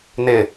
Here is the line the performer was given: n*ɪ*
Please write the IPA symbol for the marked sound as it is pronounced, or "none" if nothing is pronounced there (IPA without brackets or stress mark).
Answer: ɪ